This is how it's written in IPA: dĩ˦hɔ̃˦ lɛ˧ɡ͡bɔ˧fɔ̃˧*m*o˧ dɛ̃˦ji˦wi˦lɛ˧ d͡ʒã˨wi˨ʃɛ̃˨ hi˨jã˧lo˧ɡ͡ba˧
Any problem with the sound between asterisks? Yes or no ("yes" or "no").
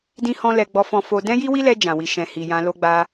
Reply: yes